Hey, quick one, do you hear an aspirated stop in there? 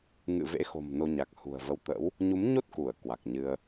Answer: no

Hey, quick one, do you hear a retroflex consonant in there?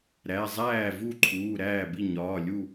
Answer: no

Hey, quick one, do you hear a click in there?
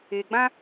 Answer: no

